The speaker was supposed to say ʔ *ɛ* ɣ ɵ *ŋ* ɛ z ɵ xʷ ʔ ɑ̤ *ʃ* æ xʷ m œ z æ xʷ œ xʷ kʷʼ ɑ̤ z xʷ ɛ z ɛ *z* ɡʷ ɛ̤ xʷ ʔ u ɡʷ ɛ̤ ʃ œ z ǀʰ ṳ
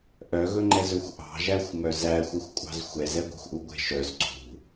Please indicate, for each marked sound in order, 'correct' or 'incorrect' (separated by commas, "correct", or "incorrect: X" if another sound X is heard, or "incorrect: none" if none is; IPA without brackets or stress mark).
incorrect: œ, incorrect: ŋ͡ǃ, incorrect: ʒ, incorrect: none